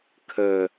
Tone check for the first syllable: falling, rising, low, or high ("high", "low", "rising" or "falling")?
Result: low